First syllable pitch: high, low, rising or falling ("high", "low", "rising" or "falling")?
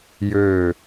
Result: falling